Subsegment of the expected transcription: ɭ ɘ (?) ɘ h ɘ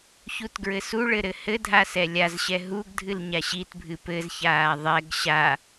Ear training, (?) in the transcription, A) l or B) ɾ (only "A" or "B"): B